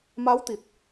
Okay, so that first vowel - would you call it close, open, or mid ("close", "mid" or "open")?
open